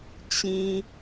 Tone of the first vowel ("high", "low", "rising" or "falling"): low